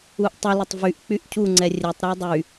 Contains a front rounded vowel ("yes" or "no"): yes